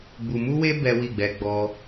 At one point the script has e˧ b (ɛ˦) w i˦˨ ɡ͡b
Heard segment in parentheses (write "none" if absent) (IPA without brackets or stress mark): ɛ˦